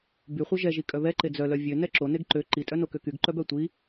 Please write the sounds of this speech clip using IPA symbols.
byχʷœ ʒɛʒi kʼœβɛǃe d͡zœlœ vʲø nɛǁo neɡǃø ǃitʼœ nokøkyɡǃœb œtʷi

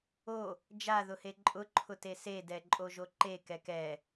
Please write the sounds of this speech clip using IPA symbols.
o | d͡ʒaðʊhe ǃʼʊǃʰʊte sedɛǃʼoʒo ǃe kɛkɛ

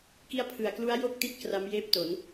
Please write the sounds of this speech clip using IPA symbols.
ki˦˥a̯pʰɯ˨˩a̯klu˦˥a̯ jo˥˩k̚ti˦˥t̚ kra˦˥mjeː˥˩p̚to˩˦n

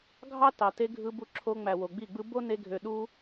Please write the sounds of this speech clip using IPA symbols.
ɡʱɑ˦ tɑ˨te˧ ɡʱɯ˧bu˧ǁʰo˧ŋ͡mæ˨ wo˨ɡ͡bi˦˨ɡ͡bɯ˦ bo˦ne˧ɡʱø˨ ɗu˦

